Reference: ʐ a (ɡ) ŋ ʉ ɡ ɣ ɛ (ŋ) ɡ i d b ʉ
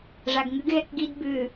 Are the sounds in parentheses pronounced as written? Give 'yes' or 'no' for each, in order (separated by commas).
yes, no